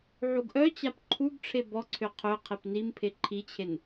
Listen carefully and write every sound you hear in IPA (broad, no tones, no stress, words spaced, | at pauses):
ʕuɡʔœt͡ɕap ǃʰuɡ ʈ͡ʂʰebɔǀʰø qʰø qʰepnimpʰe ǃʰit͡ɕʰen